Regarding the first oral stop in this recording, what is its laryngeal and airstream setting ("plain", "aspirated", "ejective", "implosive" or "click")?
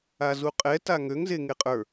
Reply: ejective